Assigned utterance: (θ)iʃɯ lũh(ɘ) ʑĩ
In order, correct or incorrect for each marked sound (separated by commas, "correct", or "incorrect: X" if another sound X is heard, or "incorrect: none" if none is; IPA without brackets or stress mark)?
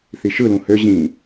correct, incorrect: ø